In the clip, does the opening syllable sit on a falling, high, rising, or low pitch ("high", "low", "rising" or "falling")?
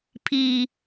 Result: low